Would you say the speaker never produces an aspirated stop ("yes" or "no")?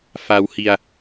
yes